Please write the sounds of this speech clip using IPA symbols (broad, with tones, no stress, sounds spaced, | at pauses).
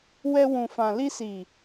w ɛ˧ w ũ˨ f ã˨ l i˧ s i˨